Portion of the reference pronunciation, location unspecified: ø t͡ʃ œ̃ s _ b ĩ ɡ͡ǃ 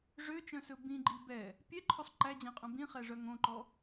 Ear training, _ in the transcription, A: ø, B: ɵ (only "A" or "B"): B